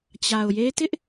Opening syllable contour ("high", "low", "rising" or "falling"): low